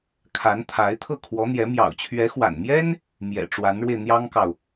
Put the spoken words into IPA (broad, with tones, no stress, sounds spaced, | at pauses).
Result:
kʰ a˧˥ n t̪ʰ a˧˥ ɪ̯ t̪ʰ ɤ˥˩ kʰ w ɔ˧˥ n̪ j ɛ˧˥ m j ɑ̰˨˩ ʊ̯ t͡ɕʰ ɥ ɛ˧˥ x w a̰˨˩ n m j ɛ˥ n | m j ɛ̰˨˩ ʈ͡ʂ w a˧˥ n ɻ w e˧ ɪ̯ n̪ j ɑ˥ ŋ k ɑ˨ ʊ̯